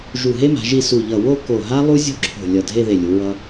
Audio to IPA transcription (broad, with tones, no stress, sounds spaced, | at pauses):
ʒ u˧˩ ɦ e˥ m a̤˩˧ ʒ i˥˧ s u˧˩ ʎ ʌ˧˩ w o˥˧ k o˧˩ ɦ a˥ lˠ u˥ zʲ o̤˥ ǁʰ o̤˧˩ lʲ ʌ˧˩ dʱ e˥˧ ð e˧˩ lʲ u˩˧ ɹ ʌ˧